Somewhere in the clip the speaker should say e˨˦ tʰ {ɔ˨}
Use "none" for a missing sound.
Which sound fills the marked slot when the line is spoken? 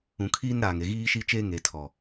ɔ˨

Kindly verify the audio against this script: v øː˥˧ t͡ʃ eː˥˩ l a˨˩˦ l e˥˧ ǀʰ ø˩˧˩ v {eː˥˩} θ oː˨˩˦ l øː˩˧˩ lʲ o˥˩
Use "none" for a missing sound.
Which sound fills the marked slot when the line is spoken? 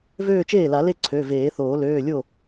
eː˨˩˦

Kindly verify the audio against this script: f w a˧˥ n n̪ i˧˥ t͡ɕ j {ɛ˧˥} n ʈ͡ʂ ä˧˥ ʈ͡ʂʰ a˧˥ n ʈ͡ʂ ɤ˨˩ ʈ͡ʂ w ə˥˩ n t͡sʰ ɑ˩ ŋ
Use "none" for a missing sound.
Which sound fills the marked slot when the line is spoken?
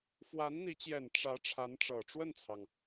ɛ˨˩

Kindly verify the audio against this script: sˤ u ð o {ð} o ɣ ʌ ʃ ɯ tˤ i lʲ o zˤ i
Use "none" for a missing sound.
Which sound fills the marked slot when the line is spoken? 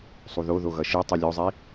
ð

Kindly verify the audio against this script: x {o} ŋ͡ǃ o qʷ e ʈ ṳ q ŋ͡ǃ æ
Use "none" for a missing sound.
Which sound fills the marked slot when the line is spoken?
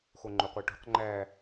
o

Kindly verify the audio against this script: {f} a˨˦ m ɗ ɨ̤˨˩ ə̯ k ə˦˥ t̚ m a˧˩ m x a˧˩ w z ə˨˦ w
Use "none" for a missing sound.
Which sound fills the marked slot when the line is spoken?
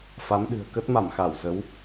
f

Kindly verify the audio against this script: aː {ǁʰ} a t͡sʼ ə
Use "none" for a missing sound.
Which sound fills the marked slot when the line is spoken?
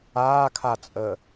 kʰ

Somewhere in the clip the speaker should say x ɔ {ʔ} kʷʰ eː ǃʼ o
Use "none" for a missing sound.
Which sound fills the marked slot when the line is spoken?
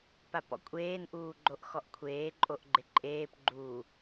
ʔ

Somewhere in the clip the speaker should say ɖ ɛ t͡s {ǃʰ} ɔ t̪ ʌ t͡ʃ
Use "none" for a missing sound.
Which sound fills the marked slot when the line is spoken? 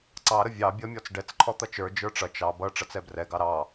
ǃʰ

